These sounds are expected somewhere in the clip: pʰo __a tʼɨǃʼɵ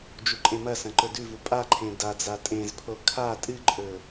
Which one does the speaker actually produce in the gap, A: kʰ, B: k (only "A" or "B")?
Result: A